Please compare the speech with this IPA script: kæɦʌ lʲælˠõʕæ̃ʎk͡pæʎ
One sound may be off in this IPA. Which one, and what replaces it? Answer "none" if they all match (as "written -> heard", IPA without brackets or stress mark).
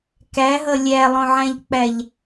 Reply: none